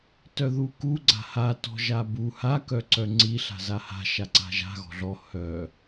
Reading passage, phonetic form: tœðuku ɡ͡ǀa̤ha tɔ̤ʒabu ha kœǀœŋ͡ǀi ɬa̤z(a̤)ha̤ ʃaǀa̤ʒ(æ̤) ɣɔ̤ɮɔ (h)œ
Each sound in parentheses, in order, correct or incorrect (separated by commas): incorrect, incorrect, correct